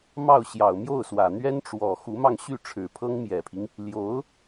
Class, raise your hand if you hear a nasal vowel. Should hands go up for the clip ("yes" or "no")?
no